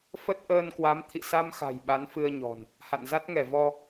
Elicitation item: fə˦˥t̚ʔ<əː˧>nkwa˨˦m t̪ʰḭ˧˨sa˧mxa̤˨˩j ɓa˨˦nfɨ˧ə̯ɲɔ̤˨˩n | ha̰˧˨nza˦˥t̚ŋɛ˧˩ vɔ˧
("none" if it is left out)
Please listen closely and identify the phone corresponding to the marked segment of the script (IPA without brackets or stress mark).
əː˧